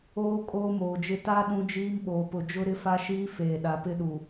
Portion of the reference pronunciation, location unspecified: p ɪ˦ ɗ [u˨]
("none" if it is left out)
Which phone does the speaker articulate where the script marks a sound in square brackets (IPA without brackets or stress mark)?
u˨